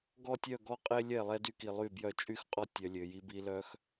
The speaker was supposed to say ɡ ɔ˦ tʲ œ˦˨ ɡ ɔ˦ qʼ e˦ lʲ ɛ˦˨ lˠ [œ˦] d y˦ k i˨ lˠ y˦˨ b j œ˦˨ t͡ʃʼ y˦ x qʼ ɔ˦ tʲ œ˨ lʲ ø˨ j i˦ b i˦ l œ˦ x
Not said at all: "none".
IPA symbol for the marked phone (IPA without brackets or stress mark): ɛ˦